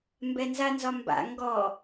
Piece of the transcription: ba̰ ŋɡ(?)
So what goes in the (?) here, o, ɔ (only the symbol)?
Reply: ɔ